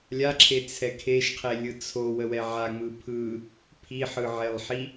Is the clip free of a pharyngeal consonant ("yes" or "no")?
no